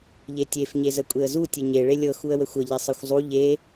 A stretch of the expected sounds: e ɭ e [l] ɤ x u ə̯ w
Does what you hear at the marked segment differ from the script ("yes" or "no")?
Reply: yes